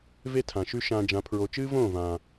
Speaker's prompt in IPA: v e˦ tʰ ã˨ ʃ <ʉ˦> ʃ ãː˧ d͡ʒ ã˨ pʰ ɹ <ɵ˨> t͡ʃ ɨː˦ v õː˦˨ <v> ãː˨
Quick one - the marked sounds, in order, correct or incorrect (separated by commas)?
correct, incorrect, correct